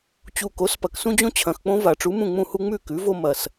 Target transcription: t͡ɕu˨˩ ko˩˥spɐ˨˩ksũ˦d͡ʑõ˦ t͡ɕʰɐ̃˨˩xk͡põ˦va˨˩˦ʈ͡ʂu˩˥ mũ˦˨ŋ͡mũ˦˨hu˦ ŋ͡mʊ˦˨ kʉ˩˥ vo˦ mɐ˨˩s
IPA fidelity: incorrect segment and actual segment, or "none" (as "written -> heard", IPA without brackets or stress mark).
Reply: ʊ˦˨ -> ʉ˦˨